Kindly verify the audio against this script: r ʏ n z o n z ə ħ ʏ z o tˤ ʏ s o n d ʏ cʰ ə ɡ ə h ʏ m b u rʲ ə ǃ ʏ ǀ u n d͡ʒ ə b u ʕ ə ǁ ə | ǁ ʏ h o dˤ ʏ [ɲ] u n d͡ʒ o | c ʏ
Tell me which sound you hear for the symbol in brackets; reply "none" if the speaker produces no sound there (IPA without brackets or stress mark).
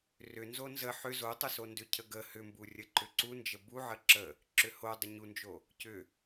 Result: ɲ